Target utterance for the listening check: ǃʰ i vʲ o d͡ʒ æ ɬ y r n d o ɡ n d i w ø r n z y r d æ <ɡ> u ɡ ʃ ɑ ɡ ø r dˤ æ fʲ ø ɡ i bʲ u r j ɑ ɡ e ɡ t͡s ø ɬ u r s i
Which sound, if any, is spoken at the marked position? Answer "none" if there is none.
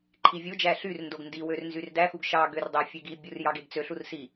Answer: x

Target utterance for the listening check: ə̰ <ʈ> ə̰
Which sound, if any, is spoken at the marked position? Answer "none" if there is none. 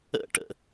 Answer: ʈ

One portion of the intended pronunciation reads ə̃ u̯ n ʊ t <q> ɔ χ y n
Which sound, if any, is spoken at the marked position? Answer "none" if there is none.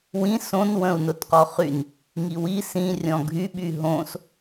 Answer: q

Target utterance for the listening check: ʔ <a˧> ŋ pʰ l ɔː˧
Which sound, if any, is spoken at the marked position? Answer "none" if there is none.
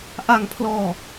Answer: a˧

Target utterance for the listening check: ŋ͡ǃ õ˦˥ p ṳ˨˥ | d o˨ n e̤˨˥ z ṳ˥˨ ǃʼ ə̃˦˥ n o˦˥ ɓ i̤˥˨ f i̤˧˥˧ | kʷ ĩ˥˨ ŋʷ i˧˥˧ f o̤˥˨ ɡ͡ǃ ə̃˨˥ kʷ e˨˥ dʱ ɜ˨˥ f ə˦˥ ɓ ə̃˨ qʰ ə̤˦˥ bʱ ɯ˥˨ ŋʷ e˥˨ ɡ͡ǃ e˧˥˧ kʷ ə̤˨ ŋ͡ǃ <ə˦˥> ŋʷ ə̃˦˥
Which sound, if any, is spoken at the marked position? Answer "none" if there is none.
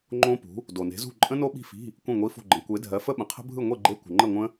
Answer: ə˥˨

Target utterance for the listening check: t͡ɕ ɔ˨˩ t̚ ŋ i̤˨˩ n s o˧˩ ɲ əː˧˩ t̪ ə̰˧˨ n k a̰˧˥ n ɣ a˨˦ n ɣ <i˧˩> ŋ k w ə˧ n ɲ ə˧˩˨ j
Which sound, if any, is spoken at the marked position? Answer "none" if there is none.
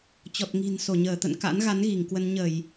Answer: i˧˩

